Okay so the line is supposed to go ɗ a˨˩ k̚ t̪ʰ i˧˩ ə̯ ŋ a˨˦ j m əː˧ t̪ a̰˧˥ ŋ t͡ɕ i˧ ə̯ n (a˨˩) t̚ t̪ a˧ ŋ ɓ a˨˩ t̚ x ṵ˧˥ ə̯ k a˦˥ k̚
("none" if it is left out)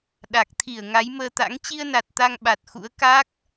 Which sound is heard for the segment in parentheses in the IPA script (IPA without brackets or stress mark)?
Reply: a˨˩